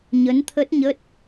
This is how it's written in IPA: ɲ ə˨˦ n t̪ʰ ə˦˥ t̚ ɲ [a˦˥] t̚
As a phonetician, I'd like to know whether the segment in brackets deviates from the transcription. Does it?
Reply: yes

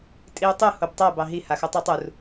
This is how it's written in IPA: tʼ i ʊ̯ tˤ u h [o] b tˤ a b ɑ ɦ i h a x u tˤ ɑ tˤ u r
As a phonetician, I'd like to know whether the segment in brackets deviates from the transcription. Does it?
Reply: no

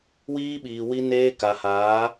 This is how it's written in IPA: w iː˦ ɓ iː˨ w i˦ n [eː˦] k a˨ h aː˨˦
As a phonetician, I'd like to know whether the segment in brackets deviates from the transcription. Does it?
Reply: no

